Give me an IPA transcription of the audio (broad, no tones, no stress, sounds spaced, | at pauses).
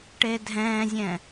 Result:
ʈ e dʱ ɛ̃ː zʲ ɛ̃